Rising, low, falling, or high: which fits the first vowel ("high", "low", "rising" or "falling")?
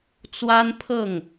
high